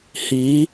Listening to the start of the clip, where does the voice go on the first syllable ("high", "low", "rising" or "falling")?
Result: rising